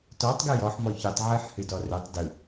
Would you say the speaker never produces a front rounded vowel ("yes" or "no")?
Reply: yes